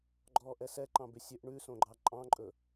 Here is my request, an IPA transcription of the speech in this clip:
ɡ͡ǃ ɔː ʔ ɛ s ɛ ǃ ɑ̃ b ʉ sʲ ø ʔ ɳ ʉ s õ ɡ͡ǃ ɑ ǃʼ ɑ̃ ǃʼ ɵ

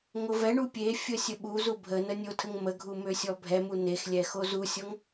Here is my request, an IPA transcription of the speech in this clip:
ŋ o v ɛ ɳ u pʲ e fʲ ə sʲ ə ɓ u z u bʱ ə n ə nʲ o tʰ ə ŋ m ə ɡʱ u m ø sʲ ɔ bʱ ɛ m u n e x lʲ ɛ x o z u sʲ ɔ ŋ

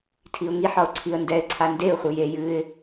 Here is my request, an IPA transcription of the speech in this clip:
tʰ i ʊ̯ ŋ i ħ ɒ ʊ̯ ǀʰ i ə̯ n d ɛ ɪ̯ ǀʰ a n d e ʊ̯ χʷ ɨ j e j ɨ ɪ̯

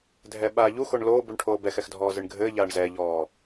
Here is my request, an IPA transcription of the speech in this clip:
dʱ ɛ ɓ aː ʎ u x o ɳ l oː b u ɳ ʈʰ oː b ɛ x ɛ x dʱ ɔː z ɨ ɳ ɡʱ ɘː ʎ aː ɳ z ɛ ʎ ɔː

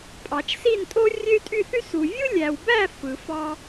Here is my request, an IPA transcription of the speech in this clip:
pʼ ɑ˨˩˦ t͡ʃ s i˥˧ n tʼ o˥ rʲ ø˥ y̯ tʼ y˥˧ θ y˥ s u˨ vʲ ɯ˥ lʲ æ˨ w b æ˥˧ f ɯ˨˩˦ f ɑ˥

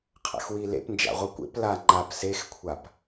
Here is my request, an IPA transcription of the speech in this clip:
qʰ a̰ x w i l ḛ p n d͡ʒ a̰ ʁʷ i kʷ ḛ p l a ŋ͡ǃ a p s e x kʷʰ a p

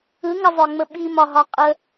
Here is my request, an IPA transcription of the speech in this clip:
ɯ ŋ ə zˤ œ ŋ͡m ə ɓ i m ɒ ɦ ɒ qʼ ə

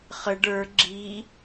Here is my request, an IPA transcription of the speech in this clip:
χ ə ɖ ə˞ ɡ͡ǁ i

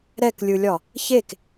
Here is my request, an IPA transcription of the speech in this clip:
ɾ ɛ k lʲ ɯ lʲ ɒ | ç e k

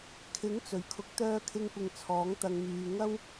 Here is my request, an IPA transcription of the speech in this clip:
kʰ ɪ˨˥ ŋ t͡s ɵ˨˩ ɥ kʰ ʊ˨˥ k̚ t̪ œː˧ kʰ ɪ˧ ŋ kʷ ɪ˨ ŋ t͡sʰ ɔː˨˥ ŋ t̪ ɐ˧ ŋ m yː˧ ŋ ɐ˥ w

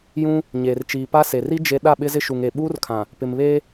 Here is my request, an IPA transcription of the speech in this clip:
j ũ˦ | ɲ eː˨ r t͡ʃ iː˨ p a˦ s e˨ r i˦ d͡ʒ e˦ ɗ a˦˨ ɓ ɪ˦ z ɪ˦ ʃ u˨ ŋ e˨ ɓ uː˦ r kʰ ã˨ | p ɪ˨ m β eː˦

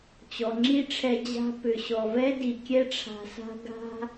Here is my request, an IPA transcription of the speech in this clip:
t͡ɕ ɔ˨ ŋ͡ǁ i˦ ʈ͡ʂʰ ɛ˧ d͡ʑ a̤˦ p ʏ˨ ɕ ɔ˨ v ɛ˦ d i˨ kʲ ɛ˦ ʈ͡ʂʰ a̤˧ s a̤˦ ɡ a̤˦

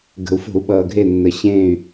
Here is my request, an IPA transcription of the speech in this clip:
ɡ ə̤˩ u̯ f o̤˧˩˧ u̯ ɓ ʌː˩ ɡʱ e˧˩ nː ə˩ ɕ ẽː˧˩ y̯

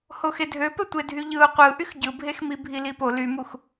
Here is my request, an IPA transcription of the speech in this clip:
h o x e dʱ ø p ø tʷ e dʱ y ʎ ɯ ʊ̯ qʷ ɯ ʔ y x ɟ ɯ bʱ e x m i bʱ i l i p o l y m u x

